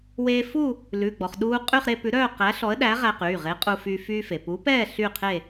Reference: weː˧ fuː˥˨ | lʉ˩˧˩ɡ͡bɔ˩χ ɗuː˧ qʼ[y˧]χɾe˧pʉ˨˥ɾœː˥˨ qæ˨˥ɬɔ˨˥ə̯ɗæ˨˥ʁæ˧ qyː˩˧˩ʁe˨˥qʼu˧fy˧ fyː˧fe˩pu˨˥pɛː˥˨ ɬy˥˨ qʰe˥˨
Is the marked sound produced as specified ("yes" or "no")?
no